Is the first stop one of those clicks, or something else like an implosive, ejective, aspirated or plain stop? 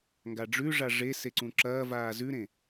plain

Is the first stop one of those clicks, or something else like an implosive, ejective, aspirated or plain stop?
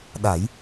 implosive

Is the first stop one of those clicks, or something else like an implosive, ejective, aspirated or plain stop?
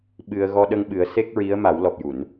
implosive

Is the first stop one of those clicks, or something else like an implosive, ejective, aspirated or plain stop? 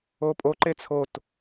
ejective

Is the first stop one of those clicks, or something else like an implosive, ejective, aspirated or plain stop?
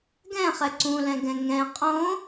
plain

